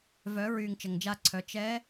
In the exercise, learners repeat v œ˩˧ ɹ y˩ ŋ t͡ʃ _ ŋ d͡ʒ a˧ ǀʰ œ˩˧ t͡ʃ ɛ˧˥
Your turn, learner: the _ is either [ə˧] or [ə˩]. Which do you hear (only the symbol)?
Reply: ə˩